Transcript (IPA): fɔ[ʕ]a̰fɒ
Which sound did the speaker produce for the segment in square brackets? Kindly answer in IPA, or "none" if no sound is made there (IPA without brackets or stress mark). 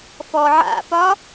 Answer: ʕ